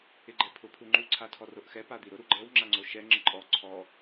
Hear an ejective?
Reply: yes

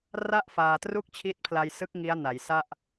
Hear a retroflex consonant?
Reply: no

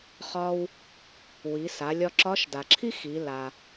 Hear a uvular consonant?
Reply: yes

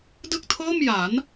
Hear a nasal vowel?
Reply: no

